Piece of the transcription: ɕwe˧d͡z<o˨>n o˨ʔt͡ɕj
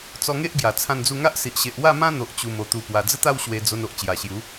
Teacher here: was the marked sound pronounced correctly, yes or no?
no